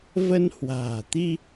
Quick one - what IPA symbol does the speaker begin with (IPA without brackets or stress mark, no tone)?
v